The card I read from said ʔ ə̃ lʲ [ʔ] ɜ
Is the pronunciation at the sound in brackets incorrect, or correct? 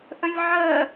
incorrect